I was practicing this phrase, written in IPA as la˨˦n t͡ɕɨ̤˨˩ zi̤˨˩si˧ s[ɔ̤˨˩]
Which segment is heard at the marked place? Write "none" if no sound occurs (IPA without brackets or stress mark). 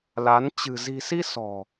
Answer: ɔ̤˨˩